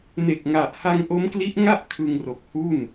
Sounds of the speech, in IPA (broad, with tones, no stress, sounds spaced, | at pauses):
n e˨˩ k̚ ŋ a˨˩ ʔ h a˧ ŋ ʔ o˦˥ m k l i˦˥ ʔ ŋ a˥˩ ʔ kʰ ɯ˧ ŋ r o˨˩ k̚ h u˥˩ n